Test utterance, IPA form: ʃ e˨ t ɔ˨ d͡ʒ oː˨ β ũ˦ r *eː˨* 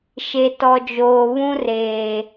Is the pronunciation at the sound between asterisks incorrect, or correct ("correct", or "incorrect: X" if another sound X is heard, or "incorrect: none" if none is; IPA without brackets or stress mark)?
correct